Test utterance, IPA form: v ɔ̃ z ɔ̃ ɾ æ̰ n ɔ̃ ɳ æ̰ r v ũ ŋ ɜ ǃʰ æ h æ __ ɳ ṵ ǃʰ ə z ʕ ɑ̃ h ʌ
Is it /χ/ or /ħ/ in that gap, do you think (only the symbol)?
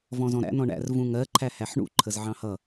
ħ